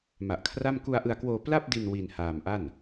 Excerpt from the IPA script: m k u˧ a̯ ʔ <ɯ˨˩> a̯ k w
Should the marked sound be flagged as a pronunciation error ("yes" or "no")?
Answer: yes